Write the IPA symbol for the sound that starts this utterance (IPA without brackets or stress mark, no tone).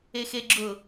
e